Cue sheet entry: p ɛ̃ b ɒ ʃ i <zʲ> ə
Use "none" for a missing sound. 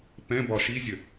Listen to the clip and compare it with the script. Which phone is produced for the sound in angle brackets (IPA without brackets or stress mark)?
zʲ